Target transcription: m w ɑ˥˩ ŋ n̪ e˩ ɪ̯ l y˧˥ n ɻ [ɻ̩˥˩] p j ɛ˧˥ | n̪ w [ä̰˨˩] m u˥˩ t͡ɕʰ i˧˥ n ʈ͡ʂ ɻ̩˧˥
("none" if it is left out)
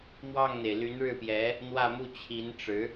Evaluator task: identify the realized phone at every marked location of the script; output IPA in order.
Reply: ɻ̩˥˩, ä˥˧

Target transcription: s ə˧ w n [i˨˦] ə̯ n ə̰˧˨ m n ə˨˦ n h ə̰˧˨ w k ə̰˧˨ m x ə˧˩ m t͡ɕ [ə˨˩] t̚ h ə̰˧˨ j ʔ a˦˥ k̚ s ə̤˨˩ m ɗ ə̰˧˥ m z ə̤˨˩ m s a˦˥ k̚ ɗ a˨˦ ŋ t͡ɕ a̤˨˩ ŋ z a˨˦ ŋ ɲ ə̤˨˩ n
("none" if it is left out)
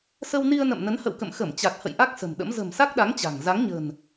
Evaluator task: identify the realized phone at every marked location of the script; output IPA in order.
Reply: i˧, a˨˩

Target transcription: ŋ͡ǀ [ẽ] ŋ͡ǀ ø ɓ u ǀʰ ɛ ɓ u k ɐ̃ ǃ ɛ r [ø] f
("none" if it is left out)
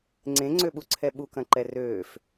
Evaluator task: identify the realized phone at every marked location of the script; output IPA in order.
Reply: ẽ, øː

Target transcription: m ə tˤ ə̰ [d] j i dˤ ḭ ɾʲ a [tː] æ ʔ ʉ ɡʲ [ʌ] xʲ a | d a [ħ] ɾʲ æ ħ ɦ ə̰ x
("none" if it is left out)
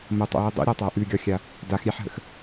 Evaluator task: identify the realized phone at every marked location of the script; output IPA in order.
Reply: none, tˤ, ɒ, x

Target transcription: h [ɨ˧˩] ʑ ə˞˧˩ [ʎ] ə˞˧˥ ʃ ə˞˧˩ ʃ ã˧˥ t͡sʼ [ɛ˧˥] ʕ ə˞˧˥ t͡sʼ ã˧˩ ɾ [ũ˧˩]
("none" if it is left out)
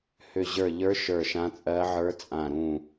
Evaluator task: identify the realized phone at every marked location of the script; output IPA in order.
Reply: ʏ˧˩, ʎ, ɜ˧˥, ũ˧˩

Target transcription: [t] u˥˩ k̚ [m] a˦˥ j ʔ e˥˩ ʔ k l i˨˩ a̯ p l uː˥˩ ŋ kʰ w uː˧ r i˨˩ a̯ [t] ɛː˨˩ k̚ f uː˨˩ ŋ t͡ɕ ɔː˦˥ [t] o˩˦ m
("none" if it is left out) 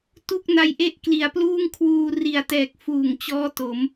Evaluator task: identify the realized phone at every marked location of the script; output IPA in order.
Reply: t, n, t, t

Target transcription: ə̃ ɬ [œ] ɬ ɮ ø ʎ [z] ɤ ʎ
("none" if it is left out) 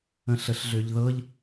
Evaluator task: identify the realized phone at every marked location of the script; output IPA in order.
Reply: ə, ð

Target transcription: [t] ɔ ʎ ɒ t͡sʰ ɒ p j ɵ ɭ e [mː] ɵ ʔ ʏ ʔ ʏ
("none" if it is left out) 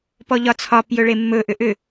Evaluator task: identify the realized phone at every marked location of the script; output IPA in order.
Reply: p, mː

